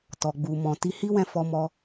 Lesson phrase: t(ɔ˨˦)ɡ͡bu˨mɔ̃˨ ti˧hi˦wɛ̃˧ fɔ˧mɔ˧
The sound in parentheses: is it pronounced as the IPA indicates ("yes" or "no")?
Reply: no